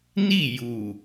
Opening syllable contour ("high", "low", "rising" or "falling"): falling